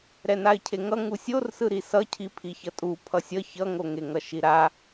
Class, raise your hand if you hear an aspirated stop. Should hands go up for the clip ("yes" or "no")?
yes